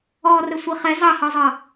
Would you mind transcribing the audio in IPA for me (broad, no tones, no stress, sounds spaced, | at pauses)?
ɔː r ə sʷ i χ ɛ z ɑ h ɑ zˤ ɑ